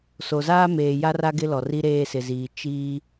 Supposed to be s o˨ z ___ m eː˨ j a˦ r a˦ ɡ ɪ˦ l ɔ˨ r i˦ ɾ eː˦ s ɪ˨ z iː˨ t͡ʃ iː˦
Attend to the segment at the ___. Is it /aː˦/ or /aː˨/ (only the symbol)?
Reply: aː˦